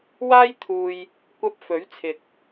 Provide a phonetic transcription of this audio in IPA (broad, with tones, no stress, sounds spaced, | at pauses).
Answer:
w aː˥ j t̪ʰ uː˧ j | kʷ ɐ˧ p̚ f ɵ˨˥ ɥ t͡sʰ ɪ˨ k̚